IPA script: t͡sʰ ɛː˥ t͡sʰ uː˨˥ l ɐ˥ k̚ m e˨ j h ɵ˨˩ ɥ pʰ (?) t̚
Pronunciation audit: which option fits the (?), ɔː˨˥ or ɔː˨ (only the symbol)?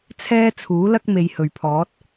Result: ɔː˨˥